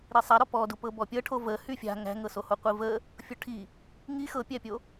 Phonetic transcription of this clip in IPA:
ɾisˤaɾɔ pɔdu pɤbɔpʲɤʈʰo və hyfʲa̤ ŋæ̤ŋɤsoho qʷivə | fʲoʈʰi | ŋi xɤpʲæpʲo

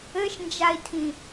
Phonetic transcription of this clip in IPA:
ɘʃnd͡ʒai̯tʰĩ

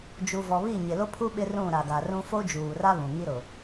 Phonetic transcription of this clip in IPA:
d͡ʒu˨vɔ˨βi˦˨ ɲɪ˨lo˦pʰu˦ ɓɪ˦rũ˦˨ɾa˨ɡa˨ rũ˦ fo˦d͡ʒuː˨ra˦ βũ˨ŋi˦ ɾʊ˨

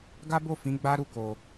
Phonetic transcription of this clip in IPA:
ɡa˦bo˦˨ fĩ˨˦ɡ͡ba˦ ɾu˦˨ko˨

